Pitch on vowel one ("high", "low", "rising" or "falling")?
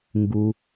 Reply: low